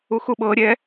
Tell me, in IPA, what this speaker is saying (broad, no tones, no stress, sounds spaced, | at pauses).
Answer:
u x u ɓ ɤ ɾʲ ɛ